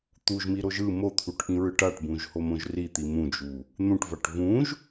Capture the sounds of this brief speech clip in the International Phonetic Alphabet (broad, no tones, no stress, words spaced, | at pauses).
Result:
t̪uʒmiɾoʒ ɯ mot̪ʰuʈʔĩɹɯʈ aʈbũʒhomõʒ rit̪i mũd͡ʒu | n̪ũʈvaʈ vũʒ